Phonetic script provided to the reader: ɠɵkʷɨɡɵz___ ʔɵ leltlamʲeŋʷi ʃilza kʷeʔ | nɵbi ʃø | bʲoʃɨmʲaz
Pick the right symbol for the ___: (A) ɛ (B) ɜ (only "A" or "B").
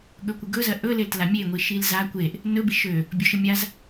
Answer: B